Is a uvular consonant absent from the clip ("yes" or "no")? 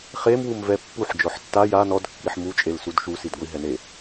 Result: no